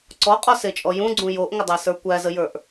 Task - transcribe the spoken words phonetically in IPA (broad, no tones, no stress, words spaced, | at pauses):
ǀɔqʼɔset͡ʃʼɔ jũɡ͡ǀũ joʔŋədˤasə˞ kʷæzəjə˞ʔ